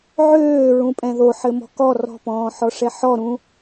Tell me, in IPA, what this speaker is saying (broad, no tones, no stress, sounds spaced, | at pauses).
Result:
ʕ øː ɹ ũ pʼ ɛ̃ ð o ħ ɘ m ɔ̤ k ɔ r ɔ̤ p ɔ̃ː ħ ɔ ʂ ɛ ħ ɔ ɾ ũ